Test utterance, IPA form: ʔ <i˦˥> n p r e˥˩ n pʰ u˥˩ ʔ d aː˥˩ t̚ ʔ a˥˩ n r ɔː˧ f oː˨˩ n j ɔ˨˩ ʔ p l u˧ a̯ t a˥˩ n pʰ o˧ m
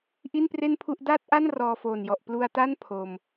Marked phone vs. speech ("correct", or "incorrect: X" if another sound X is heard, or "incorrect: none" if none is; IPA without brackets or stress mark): incorrect: i˥˩